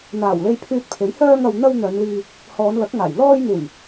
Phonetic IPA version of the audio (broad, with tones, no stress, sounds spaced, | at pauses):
n̪ aː˨˩ w l e˧ j pʰ yː˧ t̚ pʰ e˨˥ j h œː˧ ŋ ɐ˨ w n̪ ɐ˧ w n̪ œː˨˧ n l iː˧ | h ɔː˨˧ n l ɐ˨˥ k̚ ŋ aː˨˩ j l ɔː˧ j n̪ uː˨˩ j